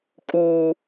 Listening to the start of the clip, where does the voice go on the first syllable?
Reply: high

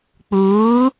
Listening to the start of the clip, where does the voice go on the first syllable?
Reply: rising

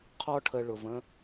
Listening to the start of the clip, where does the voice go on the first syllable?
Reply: high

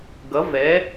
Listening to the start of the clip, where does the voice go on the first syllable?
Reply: rising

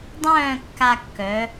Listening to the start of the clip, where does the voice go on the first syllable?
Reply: falling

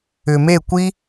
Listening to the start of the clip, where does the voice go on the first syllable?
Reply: low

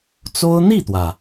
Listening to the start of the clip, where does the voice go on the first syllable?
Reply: high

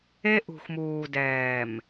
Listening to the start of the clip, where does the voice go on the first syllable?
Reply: high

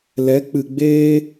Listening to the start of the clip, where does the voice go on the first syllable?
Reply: rising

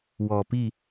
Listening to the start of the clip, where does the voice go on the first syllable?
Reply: low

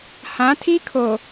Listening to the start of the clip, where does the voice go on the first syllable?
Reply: rising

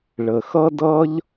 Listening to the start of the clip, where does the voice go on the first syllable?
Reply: low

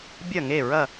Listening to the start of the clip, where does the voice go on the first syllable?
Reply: falling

